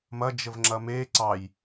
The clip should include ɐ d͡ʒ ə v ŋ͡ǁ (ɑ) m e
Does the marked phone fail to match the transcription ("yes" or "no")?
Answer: yes